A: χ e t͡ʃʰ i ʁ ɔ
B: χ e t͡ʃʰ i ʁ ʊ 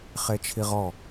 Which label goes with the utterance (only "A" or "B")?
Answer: A